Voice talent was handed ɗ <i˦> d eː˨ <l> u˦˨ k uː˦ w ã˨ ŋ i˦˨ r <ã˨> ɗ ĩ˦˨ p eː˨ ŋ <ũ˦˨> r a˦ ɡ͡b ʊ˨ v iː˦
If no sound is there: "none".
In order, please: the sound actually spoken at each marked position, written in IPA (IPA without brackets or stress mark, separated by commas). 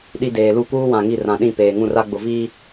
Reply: i˦, l, ã˨, ũ˦˨